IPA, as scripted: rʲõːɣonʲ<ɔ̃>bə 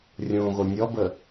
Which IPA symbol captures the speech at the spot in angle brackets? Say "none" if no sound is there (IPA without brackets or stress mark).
ɔ